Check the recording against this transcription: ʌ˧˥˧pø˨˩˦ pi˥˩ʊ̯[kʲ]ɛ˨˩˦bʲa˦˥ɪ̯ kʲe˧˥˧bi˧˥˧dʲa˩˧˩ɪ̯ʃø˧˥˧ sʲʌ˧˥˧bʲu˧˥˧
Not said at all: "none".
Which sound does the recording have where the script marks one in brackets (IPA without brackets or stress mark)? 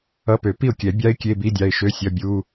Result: kʲ